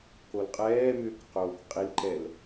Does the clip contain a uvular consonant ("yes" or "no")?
yes